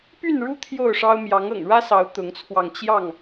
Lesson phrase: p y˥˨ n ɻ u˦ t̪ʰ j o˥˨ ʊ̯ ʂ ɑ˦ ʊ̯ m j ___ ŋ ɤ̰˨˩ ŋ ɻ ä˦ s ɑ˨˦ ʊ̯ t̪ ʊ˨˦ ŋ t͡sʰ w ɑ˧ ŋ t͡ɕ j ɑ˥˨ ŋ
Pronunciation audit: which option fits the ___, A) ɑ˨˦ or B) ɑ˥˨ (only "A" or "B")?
A